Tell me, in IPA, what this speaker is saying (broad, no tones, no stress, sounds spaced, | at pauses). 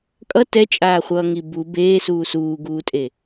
kʼ ʌ t ɛ t͡ʃʼ aː χʷ ʌː ŋ i b u b eː s uː s uː ɡ uː tʼ e